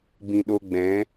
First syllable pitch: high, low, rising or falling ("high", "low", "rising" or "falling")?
low